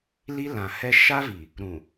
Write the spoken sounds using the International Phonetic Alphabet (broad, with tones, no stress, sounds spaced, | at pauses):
l i˦ l ã˨ h ɛ˦ ʃ a˦ v i˨ | ɾ ũ˨